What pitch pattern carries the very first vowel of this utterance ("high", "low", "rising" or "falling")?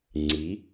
rising